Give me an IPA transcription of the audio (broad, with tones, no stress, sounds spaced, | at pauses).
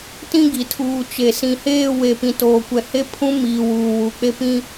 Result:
t ĩ˦ ɡ i˨ tʰ uː˨ t͡ʃ e˨ s ĩ˨ h eː˦˨ w e˨ p ĩ˨ t oː˨ kʷ ɛ˨ h e˦ pʰ ũ˦ m iː˨ w uː˨ w u˨ k͡p e˦ p ĩ˦